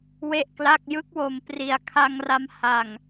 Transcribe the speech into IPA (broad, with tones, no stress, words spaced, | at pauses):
we˥˩ʔkla˥˩k̚ jɯ˦˥k̚wo˨˩m pri˨˩a̯kʰa˧ŋra˧m ha˨˩ŋ